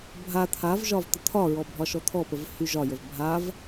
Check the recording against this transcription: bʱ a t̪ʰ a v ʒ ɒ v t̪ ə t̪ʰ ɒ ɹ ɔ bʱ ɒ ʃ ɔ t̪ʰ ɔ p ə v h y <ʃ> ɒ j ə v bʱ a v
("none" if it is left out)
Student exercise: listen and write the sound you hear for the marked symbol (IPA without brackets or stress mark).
ʒ